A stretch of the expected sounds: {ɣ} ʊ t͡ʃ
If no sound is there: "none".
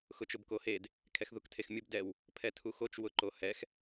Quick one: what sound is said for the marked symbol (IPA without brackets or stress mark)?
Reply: x